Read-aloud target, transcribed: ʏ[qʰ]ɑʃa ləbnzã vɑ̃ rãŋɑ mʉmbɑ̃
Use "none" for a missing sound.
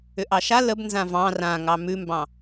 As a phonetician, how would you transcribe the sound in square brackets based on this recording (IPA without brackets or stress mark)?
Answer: ʔ